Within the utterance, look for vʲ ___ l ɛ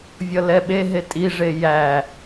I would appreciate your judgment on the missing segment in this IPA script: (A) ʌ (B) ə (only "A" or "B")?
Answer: A